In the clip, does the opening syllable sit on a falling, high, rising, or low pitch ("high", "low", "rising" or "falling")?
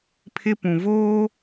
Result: high